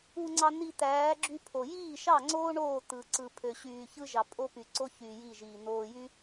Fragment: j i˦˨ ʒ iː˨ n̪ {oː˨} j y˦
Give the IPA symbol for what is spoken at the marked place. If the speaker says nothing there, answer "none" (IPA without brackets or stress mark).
oː˨